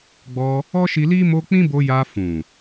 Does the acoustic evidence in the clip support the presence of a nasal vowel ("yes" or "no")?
yes